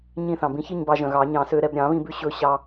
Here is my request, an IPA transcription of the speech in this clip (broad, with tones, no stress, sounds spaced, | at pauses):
ɲ ĩ˧ θ ɑ̃˩ b ĩ˧ ç i˥˧ ɲ b ɑ˧ ʒ œ̃˩ ɣ ɑ˨˩˦ ɲ ɑ̃˨˩˦ s ø˧ ɾ ɛ˥˧ b ɾʲ ɑ̃˨˩˦ β ĩ˧ b ʉ˧ ɕ ɵ˧ ɕ ɑ˧